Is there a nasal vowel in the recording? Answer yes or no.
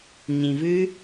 yes